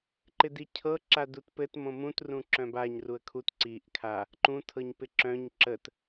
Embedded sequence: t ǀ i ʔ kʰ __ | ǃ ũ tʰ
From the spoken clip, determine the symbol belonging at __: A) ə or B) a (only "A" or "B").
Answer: B